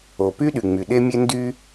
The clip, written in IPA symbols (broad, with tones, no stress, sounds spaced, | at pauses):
o˩ p y˥ ɗ y˩ ŋ͡m y˩ ɗ e˥ mʲ e˥ n d y˥